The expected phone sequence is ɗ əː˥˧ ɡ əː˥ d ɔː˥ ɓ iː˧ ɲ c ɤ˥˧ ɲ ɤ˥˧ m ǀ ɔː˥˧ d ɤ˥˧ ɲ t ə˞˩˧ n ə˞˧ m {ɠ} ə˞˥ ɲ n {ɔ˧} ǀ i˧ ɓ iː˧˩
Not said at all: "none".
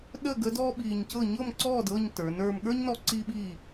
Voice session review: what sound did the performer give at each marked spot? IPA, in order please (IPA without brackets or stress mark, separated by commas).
ɠ, ɔ˧